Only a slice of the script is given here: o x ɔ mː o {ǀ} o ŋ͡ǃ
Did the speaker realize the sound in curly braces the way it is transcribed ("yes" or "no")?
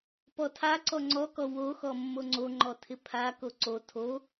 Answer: no